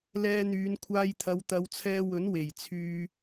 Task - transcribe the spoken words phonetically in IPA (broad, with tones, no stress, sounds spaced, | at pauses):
l ɛː˧ n̪ yː˨˧ n kʷʰ aː˧ j t̪ʰ ɐ˨˧ w t̪ ɐ˨˧ w t͡sʰ ɛː˧ w ɵ˨˥ n w e˨˩ j t͡sʰ yː˧